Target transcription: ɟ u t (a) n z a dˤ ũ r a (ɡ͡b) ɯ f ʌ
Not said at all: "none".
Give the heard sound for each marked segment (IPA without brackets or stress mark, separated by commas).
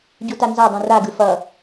a, ɡ